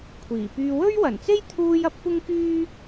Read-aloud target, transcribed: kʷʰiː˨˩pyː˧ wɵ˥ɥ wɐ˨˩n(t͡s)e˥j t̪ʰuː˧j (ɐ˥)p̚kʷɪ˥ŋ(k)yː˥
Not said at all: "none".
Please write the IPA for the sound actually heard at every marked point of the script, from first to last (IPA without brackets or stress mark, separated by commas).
t͡s, ɐ˥, k